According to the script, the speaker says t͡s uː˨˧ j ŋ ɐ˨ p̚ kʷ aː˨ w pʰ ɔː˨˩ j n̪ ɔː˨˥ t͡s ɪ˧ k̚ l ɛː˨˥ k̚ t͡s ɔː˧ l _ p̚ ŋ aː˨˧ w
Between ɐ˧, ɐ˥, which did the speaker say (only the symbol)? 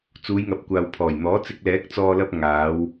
ɐ˧